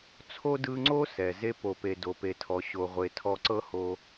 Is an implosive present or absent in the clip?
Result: absent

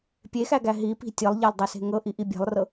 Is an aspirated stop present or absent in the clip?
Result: absent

